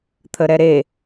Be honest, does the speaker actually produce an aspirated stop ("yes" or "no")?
yes